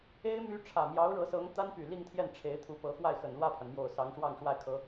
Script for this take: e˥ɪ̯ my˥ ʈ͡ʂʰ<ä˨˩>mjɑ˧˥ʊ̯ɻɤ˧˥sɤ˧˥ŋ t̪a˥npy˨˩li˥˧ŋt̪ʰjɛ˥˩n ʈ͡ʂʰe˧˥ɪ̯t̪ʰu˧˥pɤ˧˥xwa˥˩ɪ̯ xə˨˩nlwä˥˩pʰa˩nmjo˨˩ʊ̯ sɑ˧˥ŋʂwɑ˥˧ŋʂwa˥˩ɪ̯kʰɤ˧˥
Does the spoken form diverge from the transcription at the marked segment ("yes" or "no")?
no